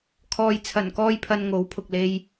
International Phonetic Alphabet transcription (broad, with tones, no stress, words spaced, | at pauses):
kʰɔː˨jt͡sʰɐ˨˩nkɔː˧jpʰɐ˨n ŋo˨˥wpʰʊ˨k̚le˧j